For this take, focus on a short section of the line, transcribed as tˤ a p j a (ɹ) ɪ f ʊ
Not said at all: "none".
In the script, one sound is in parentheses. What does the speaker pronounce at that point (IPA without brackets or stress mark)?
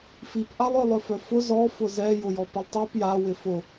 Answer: w